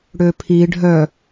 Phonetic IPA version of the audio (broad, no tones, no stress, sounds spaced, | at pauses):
ɽ ø pʰ i ɖʱ œ